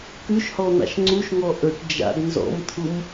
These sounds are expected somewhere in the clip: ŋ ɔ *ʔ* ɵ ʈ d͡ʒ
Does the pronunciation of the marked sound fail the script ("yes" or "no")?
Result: no